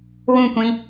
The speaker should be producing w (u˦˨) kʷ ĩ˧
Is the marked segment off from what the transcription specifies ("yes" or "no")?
yes